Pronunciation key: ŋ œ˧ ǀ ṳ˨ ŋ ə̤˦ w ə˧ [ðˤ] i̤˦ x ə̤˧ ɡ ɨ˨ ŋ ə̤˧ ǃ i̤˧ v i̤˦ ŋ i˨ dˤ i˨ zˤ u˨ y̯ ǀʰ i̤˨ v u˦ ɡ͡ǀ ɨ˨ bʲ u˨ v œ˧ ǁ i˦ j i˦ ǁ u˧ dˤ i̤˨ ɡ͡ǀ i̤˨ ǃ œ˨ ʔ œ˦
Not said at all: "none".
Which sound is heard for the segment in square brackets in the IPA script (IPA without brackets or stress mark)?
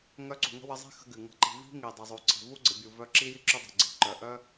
zˤ